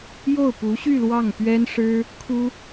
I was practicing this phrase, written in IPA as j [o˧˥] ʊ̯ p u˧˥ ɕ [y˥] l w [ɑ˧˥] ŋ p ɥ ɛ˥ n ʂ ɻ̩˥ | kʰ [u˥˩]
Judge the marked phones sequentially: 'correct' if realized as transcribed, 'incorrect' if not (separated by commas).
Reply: incorrect, incorrect, incorrect, incorrect